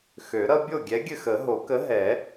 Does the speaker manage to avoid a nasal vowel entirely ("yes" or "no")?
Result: yes